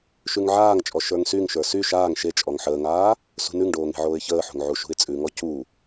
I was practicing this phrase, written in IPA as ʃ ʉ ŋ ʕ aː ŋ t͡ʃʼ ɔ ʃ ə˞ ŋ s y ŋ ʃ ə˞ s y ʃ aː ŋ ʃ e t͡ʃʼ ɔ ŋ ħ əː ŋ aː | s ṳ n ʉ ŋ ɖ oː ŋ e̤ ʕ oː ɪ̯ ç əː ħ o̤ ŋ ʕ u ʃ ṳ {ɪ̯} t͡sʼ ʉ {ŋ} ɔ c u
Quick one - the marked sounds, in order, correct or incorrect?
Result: correct, correct

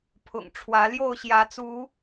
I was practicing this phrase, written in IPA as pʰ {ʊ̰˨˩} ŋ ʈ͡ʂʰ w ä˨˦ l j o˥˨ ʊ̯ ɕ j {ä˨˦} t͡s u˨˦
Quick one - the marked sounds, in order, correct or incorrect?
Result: correct, correct

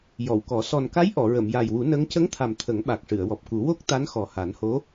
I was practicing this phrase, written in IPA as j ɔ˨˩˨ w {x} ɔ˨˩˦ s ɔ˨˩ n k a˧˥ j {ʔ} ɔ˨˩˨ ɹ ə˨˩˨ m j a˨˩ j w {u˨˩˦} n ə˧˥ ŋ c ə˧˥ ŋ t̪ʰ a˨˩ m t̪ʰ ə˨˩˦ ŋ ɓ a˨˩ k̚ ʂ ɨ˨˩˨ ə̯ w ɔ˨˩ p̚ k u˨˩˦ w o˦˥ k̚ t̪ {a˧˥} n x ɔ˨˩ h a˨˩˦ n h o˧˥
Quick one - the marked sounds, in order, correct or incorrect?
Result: incorrect: k, correct, correct, correct

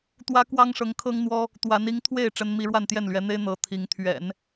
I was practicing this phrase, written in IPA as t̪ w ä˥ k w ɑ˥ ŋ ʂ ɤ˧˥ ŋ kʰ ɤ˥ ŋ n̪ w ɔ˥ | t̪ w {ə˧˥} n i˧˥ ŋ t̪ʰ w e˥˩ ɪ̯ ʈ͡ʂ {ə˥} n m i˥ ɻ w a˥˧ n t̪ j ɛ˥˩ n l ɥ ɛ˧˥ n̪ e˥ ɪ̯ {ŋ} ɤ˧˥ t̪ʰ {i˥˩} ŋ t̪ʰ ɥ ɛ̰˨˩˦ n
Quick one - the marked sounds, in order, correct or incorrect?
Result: incorrect: a˧˥, correct, incorrect: n̪, incorrect: i˧˥

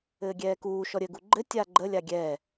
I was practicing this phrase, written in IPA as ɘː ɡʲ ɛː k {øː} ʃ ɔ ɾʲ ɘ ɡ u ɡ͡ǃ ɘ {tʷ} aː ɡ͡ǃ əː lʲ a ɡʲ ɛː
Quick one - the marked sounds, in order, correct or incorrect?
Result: incorrect: uː, incorrect: tʲ

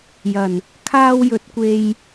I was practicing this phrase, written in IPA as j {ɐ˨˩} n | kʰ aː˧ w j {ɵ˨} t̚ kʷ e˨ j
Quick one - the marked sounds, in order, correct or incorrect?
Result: correct, correct

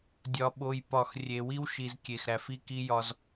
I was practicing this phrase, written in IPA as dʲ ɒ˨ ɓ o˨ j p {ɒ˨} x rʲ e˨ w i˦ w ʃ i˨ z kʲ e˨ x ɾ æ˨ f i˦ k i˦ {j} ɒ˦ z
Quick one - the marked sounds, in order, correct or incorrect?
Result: correct, correct

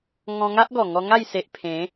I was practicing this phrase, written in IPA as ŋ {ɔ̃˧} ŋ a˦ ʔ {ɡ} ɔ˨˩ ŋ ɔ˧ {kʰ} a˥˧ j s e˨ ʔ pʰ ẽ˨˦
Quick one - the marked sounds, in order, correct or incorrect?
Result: correct, correct, incorrect: ŋ

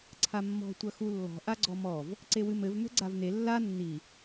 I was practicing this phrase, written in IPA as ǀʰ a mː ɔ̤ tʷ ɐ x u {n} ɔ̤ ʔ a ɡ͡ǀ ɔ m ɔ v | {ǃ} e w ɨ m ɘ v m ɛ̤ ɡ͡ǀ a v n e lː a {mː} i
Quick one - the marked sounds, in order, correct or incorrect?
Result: incorrect: lː, incorrect: ǀ, incorrect: nː

